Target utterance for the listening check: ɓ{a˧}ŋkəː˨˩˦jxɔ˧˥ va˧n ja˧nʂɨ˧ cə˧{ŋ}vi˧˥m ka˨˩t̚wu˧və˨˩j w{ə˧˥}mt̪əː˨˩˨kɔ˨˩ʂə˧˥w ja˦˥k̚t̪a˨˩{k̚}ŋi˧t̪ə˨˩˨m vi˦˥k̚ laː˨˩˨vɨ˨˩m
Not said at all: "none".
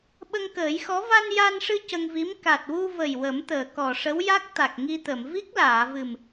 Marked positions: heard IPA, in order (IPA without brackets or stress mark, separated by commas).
ə˧, ŋ, ə˨˩˦, k̚